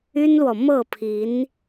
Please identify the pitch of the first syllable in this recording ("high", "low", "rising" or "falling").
high